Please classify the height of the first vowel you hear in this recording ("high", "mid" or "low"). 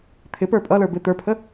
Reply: high